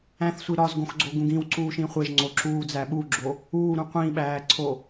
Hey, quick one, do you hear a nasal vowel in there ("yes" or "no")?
yes